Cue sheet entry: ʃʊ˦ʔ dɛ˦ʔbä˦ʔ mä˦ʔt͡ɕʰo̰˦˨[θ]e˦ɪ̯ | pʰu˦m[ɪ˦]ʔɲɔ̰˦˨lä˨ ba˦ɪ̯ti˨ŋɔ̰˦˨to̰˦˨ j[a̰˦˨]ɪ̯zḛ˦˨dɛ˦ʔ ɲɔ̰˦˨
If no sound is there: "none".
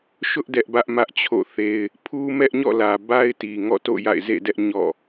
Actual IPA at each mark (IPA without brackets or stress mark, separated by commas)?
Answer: θ, ɛ˦, a̰˦˨